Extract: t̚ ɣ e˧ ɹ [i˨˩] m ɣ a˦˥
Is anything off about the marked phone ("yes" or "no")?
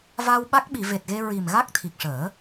no